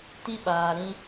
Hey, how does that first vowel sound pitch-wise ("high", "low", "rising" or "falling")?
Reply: high